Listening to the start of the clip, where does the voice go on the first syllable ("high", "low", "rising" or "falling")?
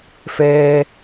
high